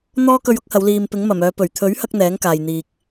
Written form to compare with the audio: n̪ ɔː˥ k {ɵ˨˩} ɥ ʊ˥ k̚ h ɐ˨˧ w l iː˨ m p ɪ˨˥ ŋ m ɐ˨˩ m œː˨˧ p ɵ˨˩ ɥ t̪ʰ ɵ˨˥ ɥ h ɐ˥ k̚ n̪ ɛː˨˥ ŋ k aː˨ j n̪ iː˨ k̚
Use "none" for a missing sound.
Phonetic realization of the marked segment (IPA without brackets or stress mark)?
ɵ˧